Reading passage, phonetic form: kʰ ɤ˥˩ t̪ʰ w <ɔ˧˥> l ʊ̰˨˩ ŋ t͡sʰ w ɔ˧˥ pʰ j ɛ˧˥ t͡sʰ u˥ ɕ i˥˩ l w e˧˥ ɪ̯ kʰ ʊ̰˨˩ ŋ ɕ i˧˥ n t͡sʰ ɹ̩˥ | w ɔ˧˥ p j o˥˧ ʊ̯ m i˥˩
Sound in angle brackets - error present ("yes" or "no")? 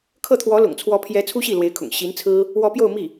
no